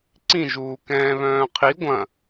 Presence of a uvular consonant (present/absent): present